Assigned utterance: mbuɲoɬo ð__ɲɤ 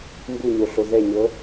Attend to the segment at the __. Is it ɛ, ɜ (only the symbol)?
ɛ